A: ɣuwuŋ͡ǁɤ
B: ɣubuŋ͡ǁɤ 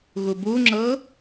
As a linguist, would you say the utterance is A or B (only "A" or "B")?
B